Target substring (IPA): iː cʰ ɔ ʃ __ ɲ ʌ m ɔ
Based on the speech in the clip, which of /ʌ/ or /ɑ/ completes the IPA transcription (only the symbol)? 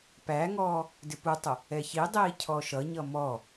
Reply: ʌ